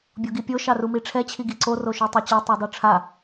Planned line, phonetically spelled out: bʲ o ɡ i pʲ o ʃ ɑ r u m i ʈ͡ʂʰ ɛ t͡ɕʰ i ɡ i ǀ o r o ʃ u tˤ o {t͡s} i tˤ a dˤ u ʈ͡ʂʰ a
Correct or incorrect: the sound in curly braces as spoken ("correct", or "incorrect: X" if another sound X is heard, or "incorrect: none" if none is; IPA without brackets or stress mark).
incorrect: t͡ɕ